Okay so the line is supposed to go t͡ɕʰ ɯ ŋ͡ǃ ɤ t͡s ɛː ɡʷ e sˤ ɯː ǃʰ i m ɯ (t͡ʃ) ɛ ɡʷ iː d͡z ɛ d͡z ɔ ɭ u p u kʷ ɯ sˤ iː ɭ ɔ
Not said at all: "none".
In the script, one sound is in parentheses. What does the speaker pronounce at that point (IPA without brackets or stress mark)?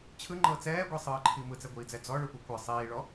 t͡s